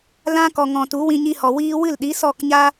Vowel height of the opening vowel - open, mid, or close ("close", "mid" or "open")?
open